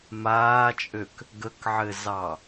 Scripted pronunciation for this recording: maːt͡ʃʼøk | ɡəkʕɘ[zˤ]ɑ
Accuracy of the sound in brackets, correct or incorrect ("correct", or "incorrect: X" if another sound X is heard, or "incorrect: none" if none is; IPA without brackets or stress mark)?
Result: incorrect: z